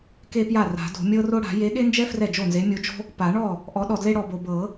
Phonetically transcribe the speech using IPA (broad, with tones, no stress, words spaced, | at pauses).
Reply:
ke˥pja˥˩ ra̤˨˩˦ do̤˨˩˦ mʲɤ˥ro˥ ɽa̤˨˩˦ je˨˥ɠe˥nd͡ʒɛ˥ frɛ˥˩d͡ʒo˥˩nze˨˥ mʲo˨˥d͡ʒo̤˥ | pa˨˩˦ɳɔ˥˩ | ʔɔ˨˥ɗɔ˨dle˥ ɽɔ˨bo˨ bɤ˨˩˦